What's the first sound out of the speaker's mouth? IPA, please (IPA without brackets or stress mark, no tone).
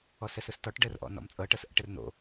ɔ